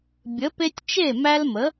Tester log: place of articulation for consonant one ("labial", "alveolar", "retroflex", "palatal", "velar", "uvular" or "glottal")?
labial